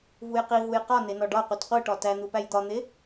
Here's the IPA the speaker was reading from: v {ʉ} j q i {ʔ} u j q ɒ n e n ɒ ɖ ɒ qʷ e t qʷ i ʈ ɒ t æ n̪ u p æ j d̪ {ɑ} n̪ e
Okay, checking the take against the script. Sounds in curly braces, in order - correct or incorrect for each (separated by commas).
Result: incorrect, incorrect, incorrect